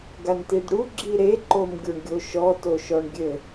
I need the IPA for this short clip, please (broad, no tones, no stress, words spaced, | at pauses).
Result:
ɡantidɽu ɡ͡ǁiɾe ǃomɡʲoɳɡʲoʃɔ toʃɔɳɡʲɘ